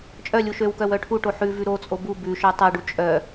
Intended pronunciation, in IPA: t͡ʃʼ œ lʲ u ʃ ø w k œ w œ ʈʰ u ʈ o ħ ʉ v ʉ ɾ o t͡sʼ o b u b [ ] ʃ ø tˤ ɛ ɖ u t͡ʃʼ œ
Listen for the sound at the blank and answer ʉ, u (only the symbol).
ʉ